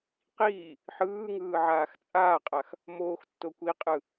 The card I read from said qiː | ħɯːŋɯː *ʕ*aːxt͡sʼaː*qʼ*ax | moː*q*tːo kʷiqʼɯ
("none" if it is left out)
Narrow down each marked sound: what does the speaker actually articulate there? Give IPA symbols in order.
ʕ, qʼ, x

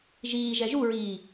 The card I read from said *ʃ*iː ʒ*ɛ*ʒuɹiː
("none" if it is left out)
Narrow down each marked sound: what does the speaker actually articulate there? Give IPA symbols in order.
ʒ, ɛ

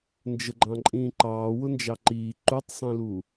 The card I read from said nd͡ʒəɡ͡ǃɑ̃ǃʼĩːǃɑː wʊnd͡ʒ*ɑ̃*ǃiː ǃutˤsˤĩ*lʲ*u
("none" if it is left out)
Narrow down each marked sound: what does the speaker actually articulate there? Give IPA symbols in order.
ɑ, l

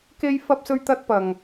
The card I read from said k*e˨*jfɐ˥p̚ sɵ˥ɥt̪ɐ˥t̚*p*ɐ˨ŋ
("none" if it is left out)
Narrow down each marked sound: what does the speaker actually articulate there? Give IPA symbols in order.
e˥, p

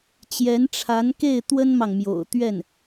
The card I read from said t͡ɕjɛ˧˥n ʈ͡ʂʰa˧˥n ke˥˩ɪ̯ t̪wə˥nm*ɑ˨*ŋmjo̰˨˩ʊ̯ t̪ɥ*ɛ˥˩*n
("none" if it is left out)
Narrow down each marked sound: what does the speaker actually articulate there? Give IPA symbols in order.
ɑ˨, ɛ˥˩

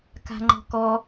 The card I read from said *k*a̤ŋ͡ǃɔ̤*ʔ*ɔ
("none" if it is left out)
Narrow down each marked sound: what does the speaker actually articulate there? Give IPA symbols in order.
k, k

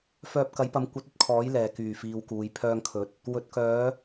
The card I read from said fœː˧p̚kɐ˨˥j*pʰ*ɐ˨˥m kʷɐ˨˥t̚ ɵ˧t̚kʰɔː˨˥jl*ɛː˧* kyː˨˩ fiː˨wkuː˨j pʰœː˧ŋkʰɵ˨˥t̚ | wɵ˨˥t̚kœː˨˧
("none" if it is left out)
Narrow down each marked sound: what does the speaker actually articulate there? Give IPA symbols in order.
p, ɛː˨˩

